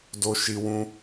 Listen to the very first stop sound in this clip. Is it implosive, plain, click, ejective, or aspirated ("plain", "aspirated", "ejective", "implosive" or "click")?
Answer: plain